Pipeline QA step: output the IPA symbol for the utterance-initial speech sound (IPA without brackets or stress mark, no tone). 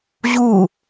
ʑ